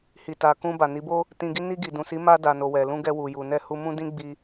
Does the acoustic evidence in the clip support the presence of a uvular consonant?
no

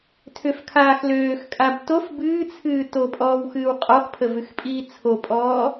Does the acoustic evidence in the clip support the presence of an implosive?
no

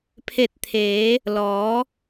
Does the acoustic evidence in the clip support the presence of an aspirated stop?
yes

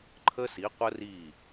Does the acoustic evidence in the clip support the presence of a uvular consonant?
yes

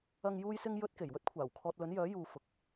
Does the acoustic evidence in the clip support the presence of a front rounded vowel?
yes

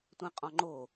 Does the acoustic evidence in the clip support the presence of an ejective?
yes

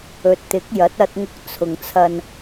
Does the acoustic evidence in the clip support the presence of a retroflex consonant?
no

